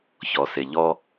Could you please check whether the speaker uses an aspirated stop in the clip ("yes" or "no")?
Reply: no